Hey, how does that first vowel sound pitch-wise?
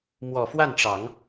low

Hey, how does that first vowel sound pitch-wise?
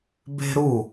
high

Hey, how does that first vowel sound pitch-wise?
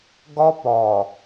high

